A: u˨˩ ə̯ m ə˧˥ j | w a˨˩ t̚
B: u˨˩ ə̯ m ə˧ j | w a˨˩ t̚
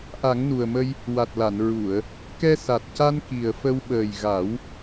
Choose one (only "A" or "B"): B